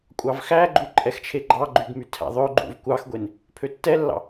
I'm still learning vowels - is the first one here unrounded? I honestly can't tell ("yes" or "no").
yes